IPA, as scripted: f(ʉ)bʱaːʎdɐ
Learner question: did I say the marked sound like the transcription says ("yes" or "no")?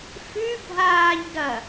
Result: yes